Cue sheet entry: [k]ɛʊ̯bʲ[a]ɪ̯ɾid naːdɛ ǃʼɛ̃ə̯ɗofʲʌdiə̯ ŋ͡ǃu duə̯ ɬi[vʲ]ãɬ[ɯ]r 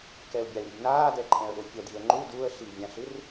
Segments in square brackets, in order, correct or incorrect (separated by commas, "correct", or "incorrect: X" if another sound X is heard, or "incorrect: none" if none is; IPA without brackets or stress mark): correct, correct, correct, correct